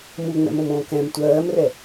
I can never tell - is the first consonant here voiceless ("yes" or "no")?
no